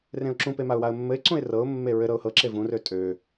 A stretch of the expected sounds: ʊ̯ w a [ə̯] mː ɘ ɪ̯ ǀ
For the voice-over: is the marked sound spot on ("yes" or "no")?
yes